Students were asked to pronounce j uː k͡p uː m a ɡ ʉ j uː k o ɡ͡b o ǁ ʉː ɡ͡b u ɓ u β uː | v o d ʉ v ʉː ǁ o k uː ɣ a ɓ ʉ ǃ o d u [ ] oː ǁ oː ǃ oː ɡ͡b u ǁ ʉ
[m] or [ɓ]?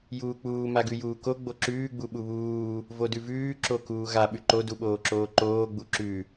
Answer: ɓ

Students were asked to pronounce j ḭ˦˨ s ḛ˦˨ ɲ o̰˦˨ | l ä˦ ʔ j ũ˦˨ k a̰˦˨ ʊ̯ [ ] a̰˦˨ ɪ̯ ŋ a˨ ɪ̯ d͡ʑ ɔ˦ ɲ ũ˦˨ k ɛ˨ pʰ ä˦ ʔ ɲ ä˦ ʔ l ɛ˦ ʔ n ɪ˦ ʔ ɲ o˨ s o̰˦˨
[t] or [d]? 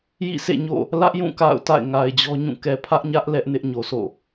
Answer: t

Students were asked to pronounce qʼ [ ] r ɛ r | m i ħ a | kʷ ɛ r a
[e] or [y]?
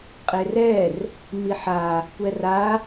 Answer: e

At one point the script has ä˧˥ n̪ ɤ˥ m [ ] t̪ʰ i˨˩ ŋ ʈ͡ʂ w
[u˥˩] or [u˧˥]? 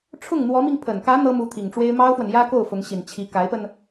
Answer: u˧˥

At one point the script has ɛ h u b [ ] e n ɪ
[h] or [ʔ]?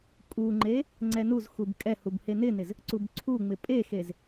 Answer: h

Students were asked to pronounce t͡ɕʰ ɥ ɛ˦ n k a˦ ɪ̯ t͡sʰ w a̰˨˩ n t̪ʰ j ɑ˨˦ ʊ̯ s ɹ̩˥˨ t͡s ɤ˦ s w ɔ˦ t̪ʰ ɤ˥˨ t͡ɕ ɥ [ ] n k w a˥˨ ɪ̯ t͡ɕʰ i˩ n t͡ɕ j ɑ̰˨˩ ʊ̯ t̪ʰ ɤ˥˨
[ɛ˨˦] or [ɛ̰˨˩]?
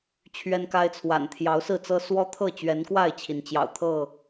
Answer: ɛ˨˦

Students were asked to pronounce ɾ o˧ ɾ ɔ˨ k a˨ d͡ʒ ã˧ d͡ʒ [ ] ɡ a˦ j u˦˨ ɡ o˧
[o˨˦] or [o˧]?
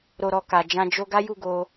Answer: o˧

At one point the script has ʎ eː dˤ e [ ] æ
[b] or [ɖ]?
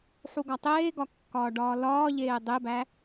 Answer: b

